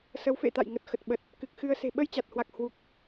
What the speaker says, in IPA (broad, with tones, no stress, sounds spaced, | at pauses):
s ə˨˦ w f ḛ˧˨ t̪ a̰˧˨ j ŋ ə˨˩ t̚ x ə˨˩ t̚ ɓ ə˨˩ t̚ | k ɨ˨˩ k̚ x ɨ˧ ə̯ s e̤˨˩ ɓ ə˧ j t͡ɕ a˨˩ t̚ h w a˨˩ k̚ h w u˨˩ k̚